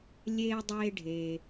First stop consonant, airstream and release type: plain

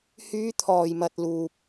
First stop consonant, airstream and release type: aspirated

